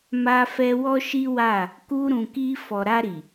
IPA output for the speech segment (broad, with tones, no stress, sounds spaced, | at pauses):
m a˧ f ɛ˧ w ɔ˦ ʃ i˦ w a˦˨ | k u˧ ɾ ũ˨ k i˧ f ɔ˨ ɾ a˧ ɾ i˨